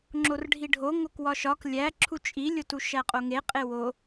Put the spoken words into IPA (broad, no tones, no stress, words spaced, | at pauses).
ŋ͡ǁorɖʱiɖʱo ŋokwɒʃɒk lʲæǁʰu t͡ʃʼilʲotu ʃæqʼoŋeqʼe wo